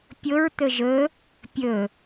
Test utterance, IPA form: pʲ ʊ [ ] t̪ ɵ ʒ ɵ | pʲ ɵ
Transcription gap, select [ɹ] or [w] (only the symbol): ɹ